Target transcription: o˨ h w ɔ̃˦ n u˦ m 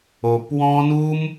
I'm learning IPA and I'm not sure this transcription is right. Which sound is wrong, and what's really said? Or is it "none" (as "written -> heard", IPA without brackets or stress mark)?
h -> p